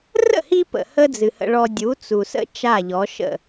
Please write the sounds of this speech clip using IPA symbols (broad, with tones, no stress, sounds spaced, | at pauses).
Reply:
r ə̰˥˩ h i˧ p ə̰˩ h ə˥ d͡z ɨ˩ h ə̰˧ ɭ ɔ˧ dʲ u˩˥ t͡s u˩ s ə̰˥ t͡ʃ a˥˩ ʎ ɔ˩˥ ʃ ə̰˥˩